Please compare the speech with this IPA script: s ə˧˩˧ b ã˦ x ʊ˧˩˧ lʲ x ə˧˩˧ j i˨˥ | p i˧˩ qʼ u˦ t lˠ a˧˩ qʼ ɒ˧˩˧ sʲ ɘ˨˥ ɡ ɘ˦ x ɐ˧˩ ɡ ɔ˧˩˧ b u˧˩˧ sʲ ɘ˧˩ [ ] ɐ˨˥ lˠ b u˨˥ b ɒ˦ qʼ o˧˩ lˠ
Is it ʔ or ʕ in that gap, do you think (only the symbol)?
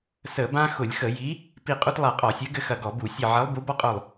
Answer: ʕ